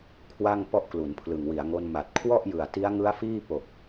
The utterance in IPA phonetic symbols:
kʰ w a˥˩ ŋ p ɔ˥˩ ʔ k l u˩˦ n pʰ l ɯ˨˩ ŋ w i˩˦ a̯ ŋ o˧ n m a˨˩ t̚ kʰ w ɔ˥˩ ʔ j ɯ˨˩ a̯ t i˦˥ a̯ ŋ ɯ˦˥ a̯ f iː˥˩ p o˨˩ k̚

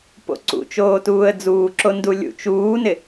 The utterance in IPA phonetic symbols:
p o̰ ǀ ṵ t͡ʃ oː t uː ə̯ d͡z uː ǁ o n d u lʲ ṵ t͡ʃ uː n ɪ

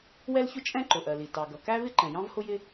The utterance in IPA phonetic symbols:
w ɛ˥ l ç ʊ˥ t͡ʃʼ ɛ̃˥ ǃ ʊ˩ ʔ ɜ˩ l i˩ t ɑ˩ ɡ ʌ˩ k æ˥ v ɪ˥ ǃ ɛ̃˩ j ɑ̃˥ v h ʊ˥ j ɪ˥

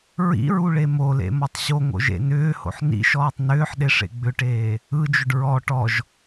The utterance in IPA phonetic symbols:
ɹ ḭ ɹ u ɭ e m o l ḛ m ɔ tˤ ɕ o ŋ o̰ ʒ ḛ n ʏː h o̰ ħ n ḭ ʃ ɔː tˤ n ʏː ħ ɗ e ʂ ḛ ɡ͡b ʏ ʈ eː | ɯ d͡ʒ ʏ ɖ ɹ ɔ ʈ ɔ ʒ

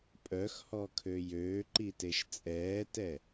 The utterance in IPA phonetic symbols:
pʼ œ x h ɔ kʰ ø j øː ǃ i t e ʃ t͡sʼ ɛː t ɛ

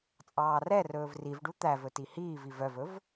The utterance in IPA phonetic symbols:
t͡sʼ ɑː r ɛ r ɵː v r i v ɖ u t̪ æ v ɵ t i h iː v i v œ v ɵ v

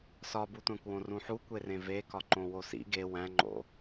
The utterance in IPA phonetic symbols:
s ɒ b u tʷ æ̃ kʷ w õ r ũ ħ u kʷ e r ẽ v e k ɒ ǃ õ w o s ḭ ɡ e w æ̃ ŋ͡ǃ o̰

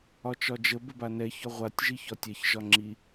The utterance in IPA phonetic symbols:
ɒ t͡ʃ ɒ d͡ʒ ə b ə b a n ɛ ç ɒ ʁʷ a tʲ ʒ i ç ɒ tʲ ɛ ç ʒ ɒ ŋ͡ǁ i

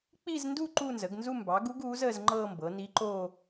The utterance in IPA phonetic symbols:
k͡p i˥˧ z n d u˥˧ ǃ uː˥˧ n z əː˩˥ ɡ n z u˥˧ m b ɑ˩˥ ɡ u˧˥ ɡ uː˩˥ z əː˥˧ z ŋ͡ǃ ɤː˥˧ m b ɤ˩˥ n i˧˥ ǃ oː˥˧

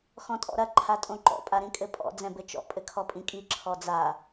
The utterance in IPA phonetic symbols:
x ɔ̃ tʼ ɔ̰ ɾ ɐ ǃʰ a tʼ õ ǃ ɔ̰ pʼ a ɾ ĩ kʼ ɘ pʼ ɔ̰ d͡z ɛ̃ b ɘ t͡ʃ ɔ̰ pʼ ɘ kʰ ɔ pʼ ĩ kʼ i ǁʰ ɔ d͡z a

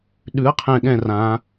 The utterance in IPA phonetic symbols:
ɗ ʉ˩˥ ɐ̯ qʰ ɛ̃˨˩ ɠ ɛ̃˨˩ r ã˩˧

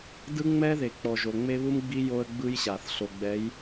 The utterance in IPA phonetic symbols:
d ɯ˦ ŋ͡m ɛ˦ ð e˨ k͡p ɔ˨ ʒ o˨ ŋ͡m e˦ β u˦ m ɡ͡b i˦ j o˦ ə̯ ɡ͡b ɯ˦ j ɕ a˨ θ ɬ o˨ ɡ͡b ɛ˨˦ j

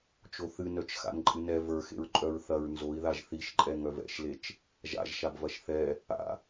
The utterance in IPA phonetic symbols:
t͡ʃ o θ ɨ n œ t͡ʃ x a̰ n ǃʼ ɨ n ɛ v ə˞ x ḛ ɹ ǃʼ œ ɹ θ ɐ ɹ n z o i̯ ð a ʒ θ i ʃ ǃʼ ɛ ŋ œ v ɛ̰ ʃ l e t͡ʃ | ʒ a̰ ʒ ʃ a b v ɐ ʃ θ ɛ | a̰

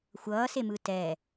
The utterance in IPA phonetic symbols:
xʷ ʌː s e m ɯ t ɛ

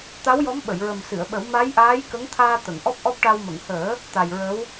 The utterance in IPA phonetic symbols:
t̪ a˧˥ w j ɔ˧˥ m ɓ ə˨˩˨ j ɹ ə˨˩ m s ɨ˨˩˨ ə̯ ɓ ə˨˩˦ w m a˧˥ j ʔ aː˧˥ j k ə˧˥ ŋ t̪ʰ aː˧ t̪ ə˨˩˨ ŋ ʔ ɔ˦˥ p̚ ʔ ɔ˦˥ p̚ ʈ a˧ w m ə˨˩˨ ŋ h əː˨˩˦ | t̪ a˨˩ j ɹ ə˧˥ w

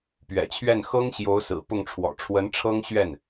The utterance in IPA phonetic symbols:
p ɥ ɛ̰˨˩ t͡ɕʰ ɥ ɛ˥˩ n x ɤ˥ ŋ ɕ j o˧˥ ʊ̯ s ɹ̩˨˩ p ʊ˥˩ ŋ ʈ͡ʂʰ w ɔ̰˨˩ ʈ͡ʂʰ w ə˧˥ n ʈ͡ʂʰ ɤ˥ ŋ ɕ ɥ ɛ˥˩ n

